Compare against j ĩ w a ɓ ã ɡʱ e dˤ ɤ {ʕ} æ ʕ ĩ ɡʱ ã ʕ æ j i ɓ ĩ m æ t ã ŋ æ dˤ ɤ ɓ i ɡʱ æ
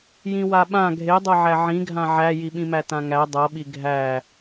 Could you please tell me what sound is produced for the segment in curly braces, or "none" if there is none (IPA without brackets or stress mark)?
ʕ